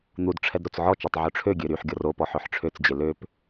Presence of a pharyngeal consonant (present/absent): present